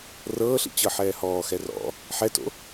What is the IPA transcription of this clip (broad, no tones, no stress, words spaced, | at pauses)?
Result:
rɤːɬḭ t͡ɕɤħɛːhɔːxɛ rɔ̰ | ħɛto̰